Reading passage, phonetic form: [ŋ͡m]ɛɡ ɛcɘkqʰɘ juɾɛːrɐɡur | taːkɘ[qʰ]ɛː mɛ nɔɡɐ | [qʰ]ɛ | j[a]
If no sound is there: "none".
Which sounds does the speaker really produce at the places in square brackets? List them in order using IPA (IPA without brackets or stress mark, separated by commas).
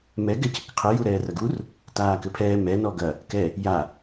m, pʰ, k, a